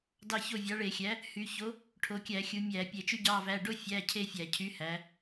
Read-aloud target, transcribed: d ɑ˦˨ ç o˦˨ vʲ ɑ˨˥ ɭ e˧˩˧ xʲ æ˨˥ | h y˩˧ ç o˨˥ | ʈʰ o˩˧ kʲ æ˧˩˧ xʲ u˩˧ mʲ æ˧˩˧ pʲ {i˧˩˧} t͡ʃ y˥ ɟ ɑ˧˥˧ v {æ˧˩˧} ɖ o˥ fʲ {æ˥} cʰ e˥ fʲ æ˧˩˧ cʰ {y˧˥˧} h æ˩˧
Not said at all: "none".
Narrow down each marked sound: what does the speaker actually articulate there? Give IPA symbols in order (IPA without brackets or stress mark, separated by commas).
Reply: e˧˩˧, æ˧˥˧, æ˧˥˧, y˨˥